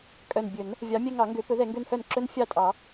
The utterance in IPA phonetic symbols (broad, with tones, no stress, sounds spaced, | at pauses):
kʼ œ˨˩ n bʲ ɵ˨˩˦ n | vʲ ɑ˨˦ mʲ ɛ˦ ŋ ɑ˨˩˦ ŋ ɡ ø˨˩˦ p ɵ˨˦ ð ɛ˨˩˦ ŋ ɡ ø˦ n h œ˥˩ n ǁ ɵ˦ n fʲ ɑ˥˩ tʼ ɑ˨˩˦